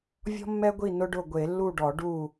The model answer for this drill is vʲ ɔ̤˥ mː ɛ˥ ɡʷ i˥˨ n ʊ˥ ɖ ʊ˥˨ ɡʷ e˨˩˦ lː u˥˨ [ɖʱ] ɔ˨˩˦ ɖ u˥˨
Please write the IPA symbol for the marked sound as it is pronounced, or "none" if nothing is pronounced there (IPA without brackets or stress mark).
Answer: ɖ